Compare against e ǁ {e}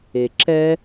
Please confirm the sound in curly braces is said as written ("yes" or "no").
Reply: no